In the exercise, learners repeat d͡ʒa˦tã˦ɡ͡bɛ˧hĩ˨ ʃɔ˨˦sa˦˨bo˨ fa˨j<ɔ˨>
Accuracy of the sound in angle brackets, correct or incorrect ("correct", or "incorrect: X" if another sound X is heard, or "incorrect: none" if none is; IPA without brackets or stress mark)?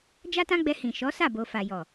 correct